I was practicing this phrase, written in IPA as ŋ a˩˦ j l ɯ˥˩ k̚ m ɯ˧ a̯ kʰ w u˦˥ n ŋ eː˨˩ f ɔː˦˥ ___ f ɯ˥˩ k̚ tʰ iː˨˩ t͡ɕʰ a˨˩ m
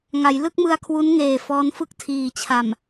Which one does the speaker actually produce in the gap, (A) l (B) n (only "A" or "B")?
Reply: B